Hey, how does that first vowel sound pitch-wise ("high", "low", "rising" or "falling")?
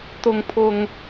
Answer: high